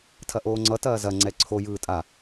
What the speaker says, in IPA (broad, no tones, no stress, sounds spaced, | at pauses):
tʰ ɐ ʔ oː ŋ͡ǀ ʌ t ɐː z ɐ ŋ͡ǀ ɛ ǀʰ o j ɯː tʼ a